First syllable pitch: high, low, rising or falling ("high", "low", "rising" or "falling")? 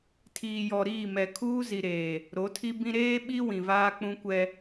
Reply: low